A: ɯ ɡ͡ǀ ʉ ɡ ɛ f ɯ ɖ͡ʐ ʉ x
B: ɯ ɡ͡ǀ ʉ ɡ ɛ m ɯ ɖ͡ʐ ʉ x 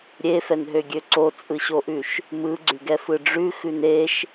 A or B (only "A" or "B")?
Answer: A